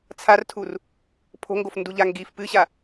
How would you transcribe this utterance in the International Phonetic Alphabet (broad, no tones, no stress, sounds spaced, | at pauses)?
t͡sʰ a r tʰ u r | pʰ o̤ ŋ ɡ o f n d u ʎ a ŋ ɡ i f p ɨ ɕ a